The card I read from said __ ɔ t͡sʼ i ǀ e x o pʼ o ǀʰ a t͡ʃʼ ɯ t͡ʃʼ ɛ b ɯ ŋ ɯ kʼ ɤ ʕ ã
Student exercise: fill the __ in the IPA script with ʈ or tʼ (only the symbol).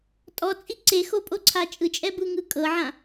tʼ